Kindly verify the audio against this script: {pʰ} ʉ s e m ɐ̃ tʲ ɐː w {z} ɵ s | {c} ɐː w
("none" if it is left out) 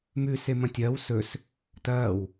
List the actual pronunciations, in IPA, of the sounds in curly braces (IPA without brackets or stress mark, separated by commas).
m, s, t